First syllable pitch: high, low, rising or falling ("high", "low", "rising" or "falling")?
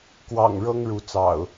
low